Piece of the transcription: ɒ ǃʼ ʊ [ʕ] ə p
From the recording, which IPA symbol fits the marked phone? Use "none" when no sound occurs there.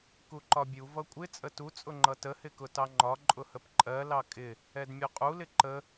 h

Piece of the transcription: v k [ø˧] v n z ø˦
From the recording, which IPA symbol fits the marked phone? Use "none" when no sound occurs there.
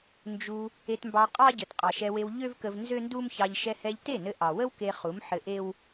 ə˧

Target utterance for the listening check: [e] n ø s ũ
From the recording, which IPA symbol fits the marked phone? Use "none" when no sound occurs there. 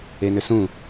e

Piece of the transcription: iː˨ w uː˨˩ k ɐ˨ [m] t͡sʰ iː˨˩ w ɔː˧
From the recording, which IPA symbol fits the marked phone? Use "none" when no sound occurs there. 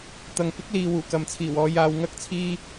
m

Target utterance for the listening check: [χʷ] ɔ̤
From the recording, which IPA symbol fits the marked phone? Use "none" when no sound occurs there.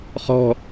χ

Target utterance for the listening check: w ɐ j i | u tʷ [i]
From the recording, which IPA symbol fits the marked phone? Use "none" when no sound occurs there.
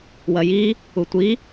i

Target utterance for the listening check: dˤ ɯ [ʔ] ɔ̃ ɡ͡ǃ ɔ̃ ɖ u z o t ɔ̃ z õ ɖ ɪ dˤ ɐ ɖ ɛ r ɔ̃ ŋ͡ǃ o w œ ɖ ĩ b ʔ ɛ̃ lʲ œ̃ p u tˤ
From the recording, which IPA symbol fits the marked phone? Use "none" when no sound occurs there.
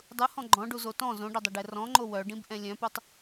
h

